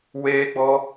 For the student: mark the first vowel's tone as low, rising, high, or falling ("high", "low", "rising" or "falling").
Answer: high